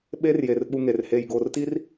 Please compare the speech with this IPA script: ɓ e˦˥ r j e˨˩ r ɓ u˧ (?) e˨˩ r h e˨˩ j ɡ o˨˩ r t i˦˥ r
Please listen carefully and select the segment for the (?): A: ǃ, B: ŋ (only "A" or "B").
B